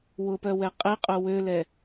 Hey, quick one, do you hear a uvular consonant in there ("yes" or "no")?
yes